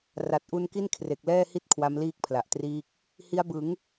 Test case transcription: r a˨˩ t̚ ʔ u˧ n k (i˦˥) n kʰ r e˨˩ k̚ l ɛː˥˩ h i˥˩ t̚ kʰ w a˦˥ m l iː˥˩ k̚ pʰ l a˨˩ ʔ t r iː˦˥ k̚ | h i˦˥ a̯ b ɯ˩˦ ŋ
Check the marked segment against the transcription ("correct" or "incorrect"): incorrect